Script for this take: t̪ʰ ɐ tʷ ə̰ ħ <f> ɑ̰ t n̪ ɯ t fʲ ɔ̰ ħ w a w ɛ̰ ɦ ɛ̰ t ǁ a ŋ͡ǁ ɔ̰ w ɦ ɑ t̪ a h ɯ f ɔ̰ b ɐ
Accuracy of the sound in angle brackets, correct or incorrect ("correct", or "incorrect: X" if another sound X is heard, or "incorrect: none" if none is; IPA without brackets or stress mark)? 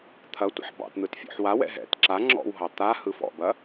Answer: incorrect: b